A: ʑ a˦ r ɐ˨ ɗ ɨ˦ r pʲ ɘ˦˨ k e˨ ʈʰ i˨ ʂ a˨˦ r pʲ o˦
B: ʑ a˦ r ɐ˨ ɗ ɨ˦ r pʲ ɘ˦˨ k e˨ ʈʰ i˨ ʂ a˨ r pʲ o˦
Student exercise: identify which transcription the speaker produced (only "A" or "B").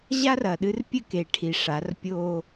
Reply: A